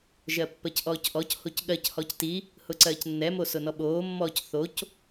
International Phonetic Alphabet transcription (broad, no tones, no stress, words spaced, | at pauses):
ʒɜpːɜcʔɔːcʔɔc hocɠɜc hɔcti | hʊǀɜːcnːɛ mosʊnɔɓoː mːɔːcθoc